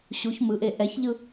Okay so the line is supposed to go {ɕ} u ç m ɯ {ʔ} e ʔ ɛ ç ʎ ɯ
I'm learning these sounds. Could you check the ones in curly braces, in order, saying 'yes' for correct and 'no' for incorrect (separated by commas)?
yes, yes